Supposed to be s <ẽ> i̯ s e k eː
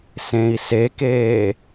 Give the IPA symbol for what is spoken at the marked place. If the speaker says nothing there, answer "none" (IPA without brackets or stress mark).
ẽ